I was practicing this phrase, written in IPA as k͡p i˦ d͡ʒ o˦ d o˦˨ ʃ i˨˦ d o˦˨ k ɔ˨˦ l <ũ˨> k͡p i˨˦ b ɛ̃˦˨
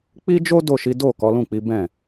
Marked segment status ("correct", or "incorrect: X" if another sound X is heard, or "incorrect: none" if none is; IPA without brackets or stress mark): incorrect: ũ˦˨